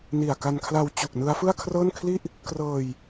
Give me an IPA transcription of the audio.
ni˨˩a̯ka˧nkʰla˧w t͡ɕu˨˩k̚ nɯ˦˥a̯fɯ˥˩a̯kʰrɤː˥˩nkʰli˥˩ʔ | krɤː˧j

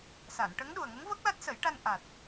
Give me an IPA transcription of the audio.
sa˨˩˨nʈə˧˥ŋ ɗu˨˩ə̯ŋə˧˥ŋ vəː˦˥k̚la˦˥t̚sə˨˩˦jʈa˧n ʔa˨˩t̚

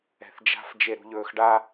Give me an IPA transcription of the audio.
ɛ̤θd͡ʒa̤f d͡ʒeɾṳʎɵːxɖa

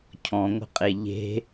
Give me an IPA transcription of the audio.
cʰɔ̃ŋʷə̤qʼe ʎe̤

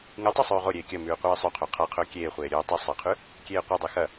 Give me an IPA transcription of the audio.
ŋɨtˤʉ sˤʉːʁoɾʲeː kʲɐmʉː qʷeːsˤʉqʰo qʰaqʰɵː kʲeːχʷeː ɾʲɵː tˤi sˤɨqʰʉ | kʲeːqʷɨdˤi xɐ

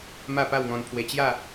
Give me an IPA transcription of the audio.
ma˥˧pa˥˧wŋɔ̃˧n pʰwe˧t͡ɕja˥˧

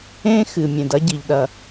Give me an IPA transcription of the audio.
ẽ˥ xɨ˩ mʲẽ˩dɐ˥ɟi˩ʎɗɐ˩

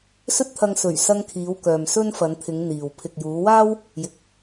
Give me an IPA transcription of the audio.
sɵ˥t̚t̪ʰɐ˧ŋsɵ˨˩ɥ sɐ˧ŋkʰiː˨˧w kœː˨msɵ˥nfɐ˨˧nt̪ʰɪ˨˧ŋ n̪iː˨w pʰɪ˨k̚juː˨˧waː˥w | jɪ˨k̚

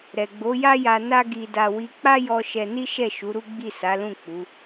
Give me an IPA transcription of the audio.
ɾɛ˨ɡ͡bo˨˦ja˦ja˧ na˦ɡi˧da˧ wi˧ k͡pa˦jɔ˧ ʃɛ˧ni˦ʃɛ˦˨ ʃu˨˦ɾu˦ɡ͡bi˦˨ sa˨˦lũ˦˨ k͡pu˨˦

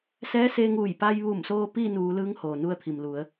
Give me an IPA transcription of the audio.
sɛː˧˥seː˧ŋuː˧˩j pa˧jʋu˧˩msoː˧ piː˥˨nuː˩˧lɯː˧˥ŋ hoː˩ nu˧ə̯t̪ʰi˩mlu˩˧ə̯

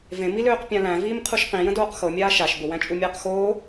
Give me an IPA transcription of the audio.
vẽmiløːq pʲãlæ̃ viːmqʰuʃqĩjə̃ doːqxɤmʲaː ʃaʃ bʊwæ̃t͡ʃʼumʲaːq xoː

